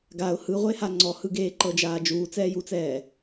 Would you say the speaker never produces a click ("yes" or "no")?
no